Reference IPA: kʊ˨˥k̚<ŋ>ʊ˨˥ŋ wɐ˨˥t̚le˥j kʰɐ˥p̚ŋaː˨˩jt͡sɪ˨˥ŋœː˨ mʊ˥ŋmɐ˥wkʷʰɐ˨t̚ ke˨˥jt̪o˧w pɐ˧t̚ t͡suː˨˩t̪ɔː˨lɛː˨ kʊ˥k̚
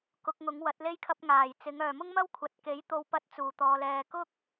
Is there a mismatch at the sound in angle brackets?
no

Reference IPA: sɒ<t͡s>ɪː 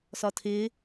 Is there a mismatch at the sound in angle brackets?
yes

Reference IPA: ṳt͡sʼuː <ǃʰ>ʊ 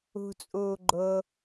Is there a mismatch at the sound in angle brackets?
yes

